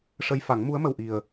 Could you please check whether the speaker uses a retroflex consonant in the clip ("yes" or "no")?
yes